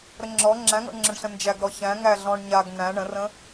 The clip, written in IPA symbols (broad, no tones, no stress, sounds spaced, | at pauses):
ɾ ə ŋ͡ǁ ɔ ŋ͡ǁ æ̃ ŋ ɔ̰ ɳ ŋ͡ǁ ə̃ ɳ ɬ ə̃ n d͡ʒ æ ɡ ɾ ɔ ç æ̃ ŋ æ ɮ ɔ̃ ɳ ɲ a ɡ n æ̃ ɳ ə̃ r ə̃